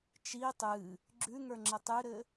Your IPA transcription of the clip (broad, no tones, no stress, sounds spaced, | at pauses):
t͡ʃ i tˤ ɨ | ɡ͡ǁ ʉ ŋ ə˞ ŋ͡ǁ ə tˤ ɨ ɾ ɘ